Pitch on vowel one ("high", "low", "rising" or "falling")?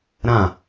falling